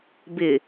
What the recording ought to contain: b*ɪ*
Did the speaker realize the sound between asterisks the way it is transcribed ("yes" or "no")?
yes